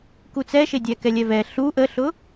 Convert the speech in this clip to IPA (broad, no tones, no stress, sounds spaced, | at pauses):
k u t͡s ɛ ʃ e dʲ ɛ k ɛ lʲ ɛ v ɛ ɬ u ʔ ə ɬ ʊ